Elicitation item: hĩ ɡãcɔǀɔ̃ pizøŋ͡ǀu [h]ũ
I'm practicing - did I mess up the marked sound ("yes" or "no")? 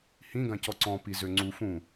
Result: yes